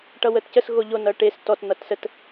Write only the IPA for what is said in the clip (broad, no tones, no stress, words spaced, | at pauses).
ʈʌwətcəs ɣoʎo nʌʈes tɔt n̪ʌtsət